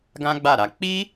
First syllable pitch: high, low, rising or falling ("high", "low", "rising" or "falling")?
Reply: high